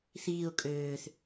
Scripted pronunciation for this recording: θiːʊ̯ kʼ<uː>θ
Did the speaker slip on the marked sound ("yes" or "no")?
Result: yes